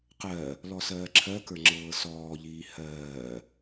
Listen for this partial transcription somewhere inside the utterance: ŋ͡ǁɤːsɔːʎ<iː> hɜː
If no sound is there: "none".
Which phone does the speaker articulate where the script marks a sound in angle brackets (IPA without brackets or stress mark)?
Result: iː